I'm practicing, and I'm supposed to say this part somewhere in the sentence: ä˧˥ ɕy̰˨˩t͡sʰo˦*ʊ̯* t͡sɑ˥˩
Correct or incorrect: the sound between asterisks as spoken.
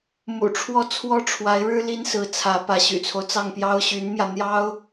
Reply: correct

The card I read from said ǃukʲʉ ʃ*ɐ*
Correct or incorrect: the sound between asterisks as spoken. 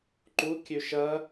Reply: correct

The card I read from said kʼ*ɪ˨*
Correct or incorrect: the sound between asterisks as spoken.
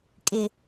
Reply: correct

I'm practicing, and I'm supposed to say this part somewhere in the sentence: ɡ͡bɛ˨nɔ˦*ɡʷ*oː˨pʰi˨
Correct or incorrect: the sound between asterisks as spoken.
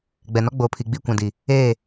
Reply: incorrect: ɡ͡b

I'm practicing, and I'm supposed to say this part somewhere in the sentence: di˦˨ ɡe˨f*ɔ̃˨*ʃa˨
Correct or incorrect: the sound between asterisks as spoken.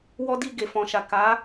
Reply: correct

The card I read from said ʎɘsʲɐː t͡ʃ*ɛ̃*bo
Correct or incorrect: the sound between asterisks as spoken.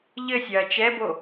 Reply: incorrect: ɛ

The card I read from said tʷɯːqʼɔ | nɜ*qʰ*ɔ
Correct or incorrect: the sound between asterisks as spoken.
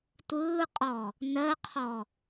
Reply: correct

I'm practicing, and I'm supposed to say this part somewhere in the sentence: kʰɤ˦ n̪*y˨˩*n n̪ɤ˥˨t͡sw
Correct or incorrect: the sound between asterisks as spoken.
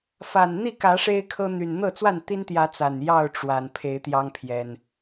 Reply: correct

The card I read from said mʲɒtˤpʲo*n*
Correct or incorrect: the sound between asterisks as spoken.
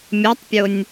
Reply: incorrect: nʲ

